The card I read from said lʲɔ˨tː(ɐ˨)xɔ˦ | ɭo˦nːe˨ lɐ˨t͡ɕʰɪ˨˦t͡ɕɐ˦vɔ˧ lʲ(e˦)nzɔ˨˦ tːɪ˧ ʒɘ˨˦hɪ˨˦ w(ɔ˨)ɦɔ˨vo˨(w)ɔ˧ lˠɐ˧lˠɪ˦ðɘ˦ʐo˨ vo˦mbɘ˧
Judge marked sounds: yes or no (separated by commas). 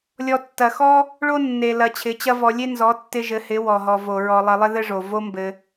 yes, yes, yes, no